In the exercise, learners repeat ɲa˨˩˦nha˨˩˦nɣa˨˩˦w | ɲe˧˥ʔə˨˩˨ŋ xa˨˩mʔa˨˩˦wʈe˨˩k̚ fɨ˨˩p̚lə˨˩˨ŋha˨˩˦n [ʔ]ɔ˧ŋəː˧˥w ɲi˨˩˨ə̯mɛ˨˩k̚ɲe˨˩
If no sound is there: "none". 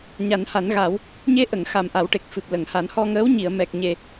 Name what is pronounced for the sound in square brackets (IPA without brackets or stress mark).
h